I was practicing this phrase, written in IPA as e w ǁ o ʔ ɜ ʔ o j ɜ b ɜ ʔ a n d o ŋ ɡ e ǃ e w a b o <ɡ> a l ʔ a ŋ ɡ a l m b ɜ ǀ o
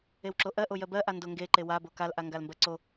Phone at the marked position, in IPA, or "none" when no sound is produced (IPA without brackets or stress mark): k